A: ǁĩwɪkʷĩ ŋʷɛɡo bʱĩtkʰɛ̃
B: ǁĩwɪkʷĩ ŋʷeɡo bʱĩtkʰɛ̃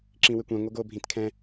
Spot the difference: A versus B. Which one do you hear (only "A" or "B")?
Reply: A